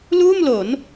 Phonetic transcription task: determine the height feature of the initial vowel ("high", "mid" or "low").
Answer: high